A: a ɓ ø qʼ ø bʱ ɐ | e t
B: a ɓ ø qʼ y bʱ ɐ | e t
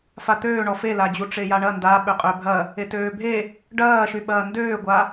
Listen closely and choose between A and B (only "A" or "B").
A